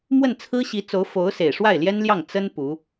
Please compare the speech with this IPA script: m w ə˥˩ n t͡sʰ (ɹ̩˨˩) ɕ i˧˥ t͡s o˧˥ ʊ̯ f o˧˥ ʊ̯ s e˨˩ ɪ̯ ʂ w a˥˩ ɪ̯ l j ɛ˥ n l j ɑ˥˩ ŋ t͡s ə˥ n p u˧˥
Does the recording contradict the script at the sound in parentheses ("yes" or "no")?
yes